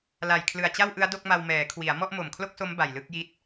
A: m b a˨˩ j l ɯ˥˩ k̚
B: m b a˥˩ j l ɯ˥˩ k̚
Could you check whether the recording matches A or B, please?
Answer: A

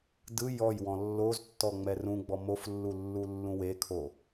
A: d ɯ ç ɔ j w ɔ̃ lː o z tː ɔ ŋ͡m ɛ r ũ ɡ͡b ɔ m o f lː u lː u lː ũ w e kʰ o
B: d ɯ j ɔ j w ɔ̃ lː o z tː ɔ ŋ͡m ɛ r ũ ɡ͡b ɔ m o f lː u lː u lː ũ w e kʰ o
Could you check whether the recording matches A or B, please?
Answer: B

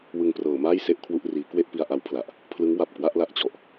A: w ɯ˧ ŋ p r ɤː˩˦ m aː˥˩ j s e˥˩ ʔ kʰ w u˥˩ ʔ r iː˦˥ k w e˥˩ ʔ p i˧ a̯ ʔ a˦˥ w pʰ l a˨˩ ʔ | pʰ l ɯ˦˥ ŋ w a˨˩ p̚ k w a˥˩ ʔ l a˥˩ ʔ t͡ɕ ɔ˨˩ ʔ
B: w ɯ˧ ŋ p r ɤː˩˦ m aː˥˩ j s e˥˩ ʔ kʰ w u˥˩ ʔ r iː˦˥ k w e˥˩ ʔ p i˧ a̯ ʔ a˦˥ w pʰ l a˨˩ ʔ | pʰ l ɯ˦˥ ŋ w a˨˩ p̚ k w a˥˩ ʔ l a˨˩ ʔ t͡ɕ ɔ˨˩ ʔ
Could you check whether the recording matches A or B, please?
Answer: A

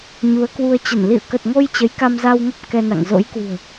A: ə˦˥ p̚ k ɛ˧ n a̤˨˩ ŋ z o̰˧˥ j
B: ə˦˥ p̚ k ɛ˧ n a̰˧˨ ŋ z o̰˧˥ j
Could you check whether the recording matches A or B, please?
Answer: B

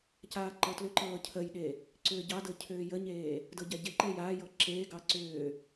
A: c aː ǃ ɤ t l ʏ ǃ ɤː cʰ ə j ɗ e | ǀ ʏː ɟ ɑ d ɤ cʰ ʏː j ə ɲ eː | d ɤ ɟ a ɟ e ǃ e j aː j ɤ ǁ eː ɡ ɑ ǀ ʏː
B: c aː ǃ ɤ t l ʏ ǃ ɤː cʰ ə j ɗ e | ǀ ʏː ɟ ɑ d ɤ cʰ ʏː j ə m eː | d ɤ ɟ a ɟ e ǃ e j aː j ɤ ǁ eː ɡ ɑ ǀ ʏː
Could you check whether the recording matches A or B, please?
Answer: A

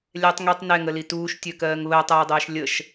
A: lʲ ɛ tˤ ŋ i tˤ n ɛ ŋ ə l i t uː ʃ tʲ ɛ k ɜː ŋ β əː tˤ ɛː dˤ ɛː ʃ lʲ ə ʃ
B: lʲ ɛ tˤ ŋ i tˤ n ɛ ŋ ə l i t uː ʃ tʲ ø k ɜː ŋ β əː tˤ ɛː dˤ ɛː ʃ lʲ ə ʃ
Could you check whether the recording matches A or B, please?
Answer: B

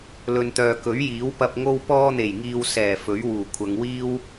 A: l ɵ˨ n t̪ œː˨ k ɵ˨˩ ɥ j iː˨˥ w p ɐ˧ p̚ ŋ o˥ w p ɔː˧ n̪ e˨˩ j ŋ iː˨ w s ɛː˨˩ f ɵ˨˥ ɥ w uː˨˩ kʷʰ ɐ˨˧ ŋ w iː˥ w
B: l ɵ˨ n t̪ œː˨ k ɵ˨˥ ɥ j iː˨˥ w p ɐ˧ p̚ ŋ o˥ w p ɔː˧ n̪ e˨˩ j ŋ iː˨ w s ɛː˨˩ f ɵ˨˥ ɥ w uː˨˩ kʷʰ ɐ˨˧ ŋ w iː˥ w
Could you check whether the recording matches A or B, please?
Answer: B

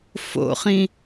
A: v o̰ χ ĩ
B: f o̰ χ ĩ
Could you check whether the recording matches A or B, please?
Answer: B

